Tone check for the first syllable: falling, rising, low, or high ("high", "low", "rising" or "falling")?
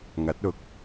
rising